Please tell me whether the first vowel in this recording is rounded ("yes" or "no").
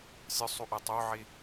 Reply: yes